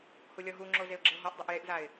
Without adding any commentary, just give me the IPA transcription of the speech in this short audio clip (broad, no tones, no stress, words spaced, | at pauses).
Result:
hulʲɔɦuŋ͡ǁo zeʊ̯ɡ͡ǁeʊ̯ɦɔʔdˤɛʔ jeʔzaɪ̯